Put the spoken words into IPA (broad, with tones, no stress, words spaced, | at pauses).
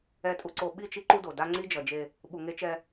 ɛ˨tʼu˨ǀo˨ ɓi˦˨t͡ʃi˦ ǃu˦do˨da˦ ŋ͡ǀi˦d͡ʒʌ˨ d͡ʒe˦ | ɓu˨ŋe˦t͡ʃɛ˦